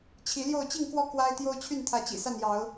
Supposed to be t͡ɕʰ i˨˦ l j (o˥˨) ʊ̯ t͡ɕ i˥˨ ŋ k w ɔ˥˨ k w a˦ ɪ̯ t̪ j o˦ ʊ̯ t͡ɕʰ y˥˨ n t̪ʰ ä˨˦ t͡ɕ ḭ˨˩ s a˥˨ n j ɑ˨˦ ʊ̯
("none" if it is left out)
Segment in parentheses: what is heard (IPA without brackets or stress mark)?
o˥˨